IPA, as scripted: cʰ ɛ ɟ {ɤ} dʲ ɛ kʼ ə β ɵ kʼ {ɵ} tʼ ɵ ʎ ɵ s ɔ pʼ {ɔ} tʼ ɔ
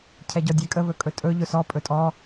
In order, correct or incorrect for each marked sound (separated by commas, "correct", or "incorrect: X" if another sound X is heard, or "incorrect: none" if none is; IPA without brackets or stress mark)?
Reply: incorrect: ɔ, correct, incorrect: ɵ